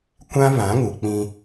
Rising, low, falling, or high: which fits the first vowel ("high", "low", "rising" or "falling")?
high